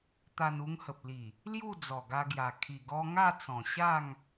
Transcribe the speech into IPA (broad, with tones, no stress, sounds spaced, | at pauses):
t̪ a˧ n u˧ ŋ h ə˨ p̚ l i˨˩ | l j u˥˧ d͡z ɔ˨˩ ɡ a˧ ɡ j a˨˩ kʰ i˨˩ ɡ ɔ˧ ŋ a˥˧ t͡s ɔ̃˨˩ ɕ a˥˧ ŋ